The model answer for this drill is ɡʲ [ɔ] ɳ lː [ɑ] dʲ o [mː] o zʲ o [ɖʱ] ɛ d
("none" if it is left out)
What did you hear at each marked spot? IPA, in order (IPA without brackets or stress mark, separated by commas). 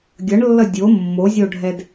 ʌ, ʌ, mː, ɖʱ